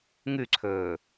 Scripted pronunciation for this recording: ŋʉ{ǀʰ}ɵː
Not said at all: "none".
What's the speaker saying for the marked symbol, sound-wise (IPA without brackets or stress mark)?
ǀʰ